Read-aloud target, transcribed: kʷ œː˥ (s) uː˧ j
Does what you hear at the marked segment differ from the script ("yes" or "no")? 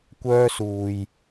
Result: no